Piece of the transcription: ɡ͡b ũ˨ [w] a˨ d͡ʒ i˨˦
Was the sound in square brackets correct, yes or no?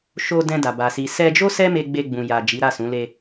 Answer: no